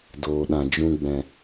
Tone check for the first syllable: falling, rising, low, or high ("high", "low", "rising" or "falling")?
low